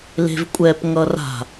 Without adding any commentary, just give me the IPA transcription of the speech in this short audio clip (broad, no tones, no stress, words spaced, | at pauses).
le̤vkʷʼɛp ŋʌra̤